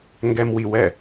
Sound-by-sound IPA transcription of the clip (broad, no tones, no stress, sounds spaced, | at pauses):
ŋ ɡ ɛ m w i w ɛ